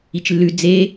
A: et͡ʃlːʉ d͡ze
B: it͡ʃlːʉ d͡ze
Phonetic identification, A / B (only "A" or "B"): B